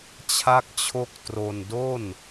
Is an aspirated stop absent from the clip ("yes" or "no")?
no